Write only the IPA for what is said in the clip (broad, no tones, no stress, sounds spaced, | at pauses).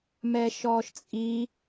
m ɛ ʃ ɔ ʃ t͡sʼ i